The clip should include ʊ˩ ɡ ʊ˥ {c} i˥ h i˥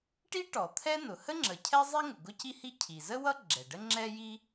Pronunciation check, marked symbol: correct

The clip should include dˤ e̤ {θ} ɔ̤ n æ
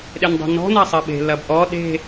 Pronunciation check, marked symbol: incorrect: n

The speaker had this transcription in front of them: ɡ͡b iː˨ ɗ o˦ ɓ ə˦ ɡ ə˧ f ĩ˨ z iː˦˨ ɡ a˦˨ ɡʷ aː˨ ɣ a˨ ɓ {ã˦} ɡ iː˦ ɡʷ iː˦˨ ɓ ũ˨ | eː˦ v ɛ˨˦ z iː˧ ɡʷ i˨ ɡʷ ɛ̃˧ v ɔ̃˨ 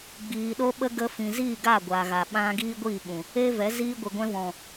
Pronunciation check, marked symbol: incorrect: ã˧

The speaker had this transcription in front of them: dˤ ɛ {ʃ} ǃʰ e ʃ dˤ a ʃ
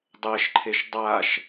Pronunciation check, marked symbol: correct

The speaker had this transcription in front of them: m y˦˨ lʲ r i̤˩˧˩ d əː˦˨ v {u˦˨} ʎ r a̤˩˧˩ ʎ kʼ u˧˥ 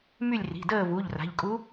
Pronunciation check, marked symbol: incorrect: u˩˧˩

